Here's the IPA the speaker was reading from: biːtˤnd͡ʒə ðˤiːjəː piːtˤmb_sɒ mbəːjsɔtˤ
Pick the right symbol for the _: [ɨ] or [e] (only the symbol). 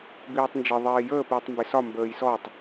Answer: e